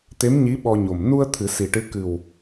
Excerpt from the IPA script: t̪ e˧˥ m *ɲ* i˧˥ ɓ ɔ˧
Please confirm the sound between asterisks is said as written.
yes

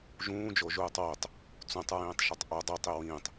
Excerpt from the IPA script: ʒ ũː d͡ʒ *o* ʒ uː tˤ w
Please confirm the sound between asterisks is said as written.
yes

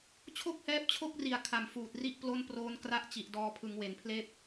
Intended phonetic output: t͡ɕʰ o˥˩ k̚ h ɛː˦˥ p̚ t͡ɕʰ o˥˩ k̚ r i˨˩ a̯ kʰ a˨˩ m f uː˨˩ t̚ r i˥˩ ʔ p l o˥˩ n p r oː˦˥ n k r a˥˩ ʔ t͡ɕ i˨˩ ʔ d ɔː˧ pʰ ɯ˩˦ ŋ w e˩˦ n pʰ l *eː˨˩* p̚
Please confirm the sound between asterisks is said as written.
no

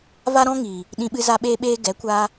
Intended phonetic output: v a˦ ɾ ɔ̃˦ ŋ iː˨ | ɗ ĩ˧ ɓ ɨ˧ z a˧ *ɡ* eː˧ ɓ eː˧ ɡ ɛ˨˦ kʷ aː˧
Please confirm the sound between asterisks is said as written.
no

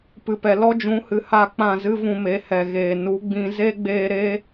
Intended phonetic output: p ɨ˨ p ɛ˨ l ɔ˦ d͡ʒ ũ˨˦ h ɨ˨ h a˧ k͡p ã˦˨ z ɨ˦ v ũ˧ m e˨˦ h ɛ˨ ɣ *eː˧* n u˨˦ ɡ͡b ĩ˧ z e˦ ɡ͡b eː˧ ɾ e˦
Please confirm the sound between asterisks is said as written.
no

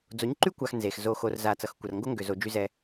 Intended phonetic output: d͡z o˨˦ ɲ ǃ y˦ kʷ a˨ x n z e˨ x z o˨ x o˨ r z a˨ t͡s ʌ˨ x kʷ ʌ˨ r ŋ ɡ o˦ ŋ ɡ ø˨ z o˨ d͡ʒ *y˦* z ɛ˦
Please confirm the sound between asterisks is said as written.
yes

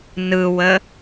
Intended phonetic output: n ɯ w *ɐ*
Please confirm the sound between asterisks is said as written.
no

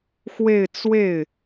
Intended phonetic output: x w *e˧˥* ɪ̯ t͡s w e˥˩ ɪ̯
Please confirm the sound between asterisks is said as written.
no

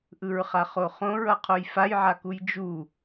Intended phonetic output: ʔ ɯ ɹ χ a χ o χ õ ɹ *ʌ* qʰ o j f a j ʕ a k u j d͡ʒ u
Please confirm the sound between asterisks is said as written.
yes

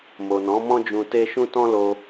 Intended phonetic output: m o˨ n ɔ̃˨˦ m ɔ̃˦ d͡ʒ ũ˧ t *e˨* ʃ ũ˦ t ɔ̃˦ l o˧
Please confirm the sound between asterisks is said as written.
no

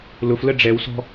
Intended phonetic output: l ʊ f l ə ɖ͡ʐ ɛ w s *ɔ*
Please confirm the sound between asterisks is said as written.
no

